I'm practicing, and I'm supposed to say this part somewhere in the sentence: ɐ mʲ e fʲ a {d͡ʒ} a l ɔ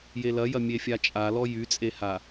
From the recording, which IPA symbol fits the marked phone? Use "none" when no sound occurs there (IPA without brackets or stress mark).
t͡ʃʼ